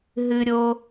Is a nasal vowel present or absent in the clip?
absent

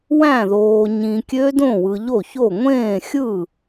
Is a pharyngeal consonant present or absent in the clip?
absent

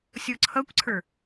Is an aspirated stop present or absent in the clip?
present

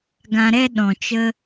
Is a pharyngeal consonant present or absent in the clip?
absent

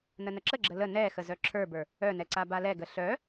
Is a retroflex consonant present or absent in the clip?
absent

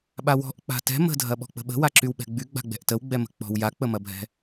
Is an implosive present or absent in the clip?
present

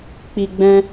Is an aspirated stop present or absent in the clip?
absent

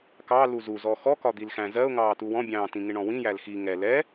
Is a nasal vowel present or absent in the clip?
present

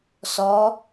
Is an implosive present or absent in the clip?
absent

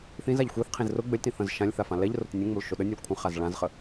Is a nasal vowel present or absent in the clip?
present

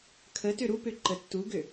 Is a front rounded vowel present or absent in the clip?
present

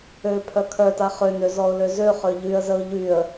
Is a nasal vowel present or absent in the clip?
absent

